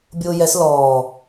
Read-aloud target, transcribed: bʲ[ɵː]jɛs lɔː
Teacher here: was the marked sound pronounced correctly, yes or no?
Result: no